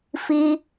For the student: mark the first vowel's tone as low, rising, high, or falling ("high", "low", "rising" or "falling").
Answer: high